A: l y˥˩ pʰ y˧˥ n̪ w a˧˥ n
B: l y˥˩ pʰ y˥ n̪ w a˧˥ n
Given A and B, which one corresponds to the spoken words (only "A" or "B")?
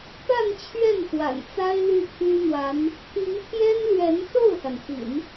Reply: B